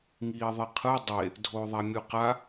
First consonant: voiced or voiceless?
voiced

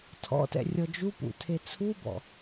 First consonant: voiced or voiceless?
voiceless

